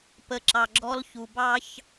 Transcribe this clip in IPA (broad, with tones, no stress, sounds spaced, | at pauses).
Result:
p ə˨ ǁ ɑ˨ ɡ͡ǁ ɔ˦ l ç u˨ b ɑ˦ ç